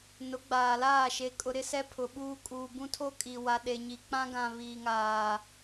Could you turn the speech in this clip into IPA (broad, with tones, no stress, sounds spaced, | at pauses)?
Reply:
n ʊ˨˦ ɡ͡b aː˨ l aː˦˨ ʃ e˨ kʼ ʊ˨ ɾ ɪ˦ s ɛ˦ pʰ ʊ˨ ɓ uː˦ kʼ uː˨ b ũ˦ tʰ o˦ kʼ i˨ w a˨ ɗ e˨ ɲ i˨ k͡p ã˦ ɡ ã˨ β iː˨ ŋ aː˨